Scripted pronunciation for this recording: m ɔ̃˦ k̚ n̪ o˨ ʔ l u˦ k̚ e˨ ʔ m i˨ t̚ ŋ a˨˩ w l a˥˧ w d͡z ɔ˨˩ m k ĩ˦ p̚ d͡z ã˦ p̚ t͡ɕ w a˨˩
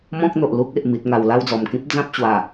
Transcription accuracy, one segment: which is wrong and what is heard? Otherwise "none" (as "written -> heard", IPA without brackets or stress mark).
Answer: none